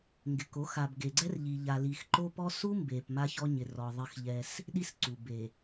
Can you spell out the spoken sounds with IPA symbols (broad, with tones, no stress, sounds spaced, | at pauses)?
ŋ ɡ ɪ˨ k o˨˦ x a˨ b ɡ e˨ ɡ͡ǀ ɛ˦ r ʎ i˨ ʎ a˨ l i˨ x ǃ o˦ p ɔ˦ s u˦ m b e˨ p m a˦ ç ɔ˦ ɲ ɪ˨ r ɔ˨ ðˤ ɪ˦ x ʎ ɛ˦ s | ɗ i˦ s ǀ u˨ b e˨